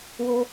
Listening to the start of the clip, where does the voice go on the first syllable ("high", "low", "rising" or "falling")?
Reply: high